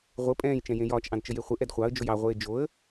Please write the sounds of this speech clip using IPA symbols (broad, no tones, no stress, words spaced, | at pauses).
ʁʷɘ pʼɛ̃ːj t͡ʃɛ̃jẽjɒːt͡ʃ ʔɑ̃dt͡ʃəjeχʷɘ ʔɛdχʷɑə̯ d͡ʒojɑ ʁʷeːd͡ʒoə̯